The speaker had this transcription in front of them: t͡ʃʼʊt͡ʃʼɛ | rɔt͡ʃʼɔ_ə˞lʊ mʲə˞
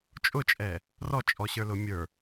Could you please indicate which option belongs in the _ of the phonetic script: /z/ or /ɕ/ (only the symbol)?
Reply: ɕ